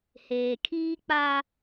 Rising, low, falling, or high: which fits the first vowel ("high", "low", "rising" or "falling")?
low